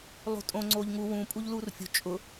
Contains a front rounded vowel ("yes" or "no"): no